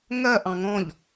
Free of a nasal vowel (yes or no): no